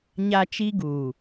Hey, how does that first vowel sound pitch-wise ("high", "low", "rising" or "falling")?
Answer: high